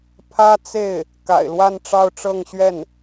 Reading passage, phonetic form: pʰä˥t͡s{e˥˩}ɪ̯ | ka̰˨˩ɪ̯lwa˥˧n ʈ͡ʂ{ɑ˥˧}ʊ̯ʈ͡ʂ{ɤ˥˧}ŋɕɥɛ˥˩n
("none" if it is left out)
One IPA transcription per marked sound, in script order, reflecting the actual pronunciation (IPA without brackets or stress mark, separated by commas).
e˥˩, ɑ˥˧, ɤ˥˧